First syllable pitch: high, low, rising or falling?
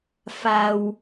low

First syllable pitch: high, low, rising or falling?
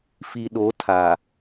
low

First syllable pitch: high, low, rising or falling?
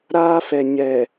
high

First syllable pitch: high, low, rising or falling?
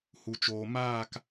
low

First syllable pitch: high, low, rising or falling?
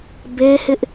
high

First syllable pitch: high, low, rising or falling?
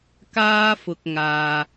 high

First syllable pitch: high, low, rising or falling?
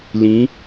rising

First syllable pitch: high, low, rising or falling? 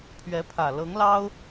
rising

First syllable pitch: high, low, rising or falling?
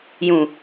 low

